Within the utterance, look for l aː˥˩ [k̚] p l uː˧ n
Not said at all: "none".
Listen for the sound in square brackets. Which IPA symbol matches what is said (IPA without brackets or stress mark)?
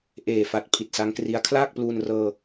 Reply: k̚